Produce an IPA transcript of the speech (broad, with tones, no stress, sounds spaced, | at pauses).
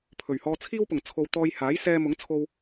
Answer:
pʰ ɵ˨˩ ɥ h ɔː˧ t͡sʰ iː˥ w p ʊ˨˩ ŋ t͡sʰ o˧ w t̪ ɔː˧ j h aː˨˥ j s ɛː˧ m ʊ˨˥ ŋ t͡sʰ o˧ w